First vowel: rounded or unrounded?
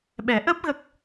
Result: unrounded